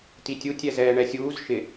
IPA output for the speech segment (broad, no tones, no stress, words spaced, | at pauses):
titʲu tʲɛzɛːɳɛsʲuːz ʃɪ